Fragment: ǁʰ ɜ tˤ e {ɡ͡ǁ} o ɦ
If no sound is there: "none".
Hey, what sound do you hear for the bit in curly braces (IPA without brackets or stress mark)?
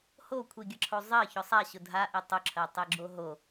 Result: ɡ͡ǁ